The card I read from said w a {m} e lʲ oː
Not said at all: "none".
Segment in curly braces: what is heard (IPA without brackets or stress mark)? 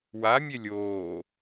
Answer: mʲ